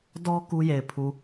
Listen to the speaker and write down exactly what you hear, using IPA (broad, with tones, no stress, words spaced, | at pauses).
dɔ˦ ku˦je˨ɪ̯pʰu˨